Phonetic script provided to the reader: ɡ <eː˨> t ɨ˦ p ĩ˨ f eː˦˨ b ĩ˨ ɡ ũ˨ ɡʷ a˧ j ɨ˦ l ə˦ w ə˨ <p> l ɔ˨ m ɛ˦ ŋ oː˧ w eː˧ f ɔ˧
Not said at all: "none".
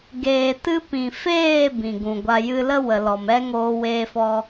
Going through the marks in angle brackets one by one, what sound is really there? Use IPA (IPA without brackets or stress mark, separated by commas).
eː˨, none